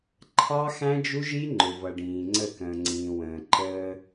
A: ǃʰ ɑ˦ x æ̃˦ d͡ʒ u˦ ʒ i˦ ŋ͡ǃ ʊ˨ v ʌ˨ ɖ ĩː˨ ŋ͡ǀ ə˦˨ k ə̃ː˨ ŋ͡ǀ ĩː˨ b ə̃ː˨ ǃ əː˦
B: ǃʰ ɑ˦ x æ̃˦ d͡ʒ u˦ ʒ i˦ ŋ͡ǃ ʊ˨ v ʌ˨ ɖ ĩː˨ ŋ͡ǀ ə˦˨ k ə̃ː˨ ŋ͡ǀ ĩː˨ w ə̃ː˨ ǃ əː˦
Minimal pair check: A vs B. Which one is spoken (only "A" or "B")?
B